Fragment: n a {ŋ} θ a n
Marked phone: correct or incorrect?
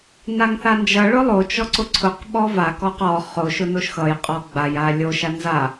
correct